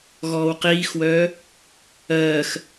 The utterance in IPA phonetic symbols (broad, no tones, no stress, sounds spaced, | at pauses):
ɣ ɔː w q iː x w œː | ɜː x